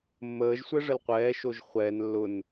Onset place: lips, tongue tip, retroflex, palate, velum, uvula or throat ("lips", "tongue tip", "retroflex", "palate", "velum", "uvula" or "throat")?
lips